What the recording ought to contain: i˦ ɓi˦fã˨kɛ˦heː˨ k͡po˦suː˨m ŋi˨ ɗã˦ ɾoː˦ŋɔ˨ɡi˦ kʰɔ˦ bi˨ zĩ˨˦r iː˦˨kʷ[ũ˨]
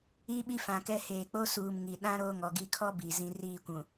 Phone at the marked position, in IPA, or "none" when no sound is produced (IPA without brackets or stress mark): ũ˨